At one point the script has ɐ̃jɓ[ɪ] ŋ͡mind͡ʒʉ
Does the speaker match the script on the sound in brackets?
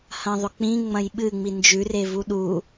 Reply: no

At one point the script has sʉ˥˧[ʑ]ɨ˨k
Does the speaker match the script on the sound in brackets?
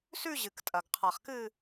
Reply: yes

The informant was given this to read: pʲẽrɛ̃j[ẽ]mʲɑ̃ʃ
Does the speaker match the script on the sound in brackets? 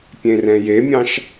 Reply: no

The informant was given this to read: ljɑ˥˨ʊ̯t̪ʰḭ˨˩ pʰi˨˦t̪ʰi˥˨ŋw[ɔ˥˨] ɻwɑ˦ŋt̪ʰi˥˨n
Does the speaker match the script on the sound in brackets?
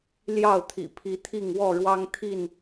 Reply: yes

